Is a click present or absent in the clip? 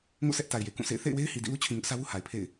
absent